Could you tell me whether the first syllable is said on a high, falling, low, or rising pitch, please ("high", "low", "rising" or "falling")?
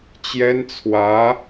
high